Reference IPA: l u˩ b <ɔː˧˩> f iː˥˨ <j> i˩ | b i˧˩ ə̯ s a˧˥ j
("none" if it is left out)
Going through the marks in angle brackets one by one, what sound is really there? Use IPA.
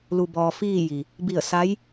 ɔː˩, j

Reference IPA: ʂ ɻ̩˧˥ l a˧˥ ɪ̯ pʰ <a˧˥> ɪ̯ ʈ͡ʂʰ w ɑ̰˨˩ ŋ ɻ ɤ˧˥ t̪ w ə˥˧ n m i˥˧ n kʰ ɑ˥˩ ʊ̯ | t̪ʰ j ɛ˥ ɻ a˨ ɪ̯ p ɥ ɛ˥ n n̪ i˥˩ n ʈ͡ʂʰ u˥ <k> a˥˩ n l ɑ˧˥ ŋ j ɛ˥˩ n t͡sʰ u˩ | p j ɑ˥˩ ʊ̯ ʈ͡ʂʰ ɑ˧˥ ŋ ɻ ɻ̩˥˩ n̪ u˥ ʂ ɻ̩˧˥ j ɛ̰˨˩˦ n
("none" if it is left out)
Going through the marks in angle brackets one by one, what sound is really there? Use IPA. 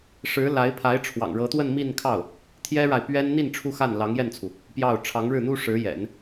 a˧˥, x

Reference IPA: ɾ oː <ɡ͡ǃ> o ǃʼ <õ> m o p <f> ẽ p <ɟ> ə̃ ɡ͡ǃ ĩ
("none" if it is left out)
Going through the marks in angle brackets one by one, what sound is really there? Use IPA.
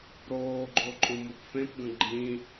ɡ͡ǃ, õ, f, ɡ

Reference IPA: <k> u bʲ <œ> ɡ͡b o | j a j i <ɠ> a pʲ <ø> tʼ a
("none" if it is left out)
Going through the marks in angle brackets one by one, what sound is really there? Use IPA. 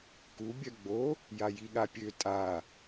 k, œ, ɠ, ø

